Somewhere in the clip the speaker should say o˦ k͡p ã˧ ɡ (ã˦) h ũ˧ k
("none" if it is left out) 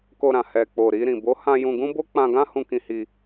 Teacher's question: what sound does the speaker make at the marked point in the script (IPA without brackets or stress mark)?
ã˦